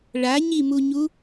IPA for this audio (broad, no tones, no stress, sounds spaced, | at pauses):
ɭ a ɲ i m u ɲ u